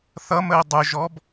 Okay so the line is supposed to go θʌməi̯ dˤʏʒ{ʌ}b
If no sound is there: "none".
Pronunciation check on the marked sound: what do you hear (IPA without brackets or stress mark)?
ɔ